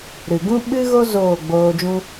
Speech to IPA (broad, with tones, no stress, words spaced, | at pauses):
ɾɨ˨ɡũ˦ ɓɨ˦ɣo˦ zoː˦˨ɡ͡boː˧d͡ʒũ˦